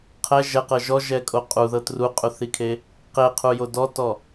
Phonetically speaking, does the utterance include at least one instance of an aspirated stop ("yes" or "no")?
yes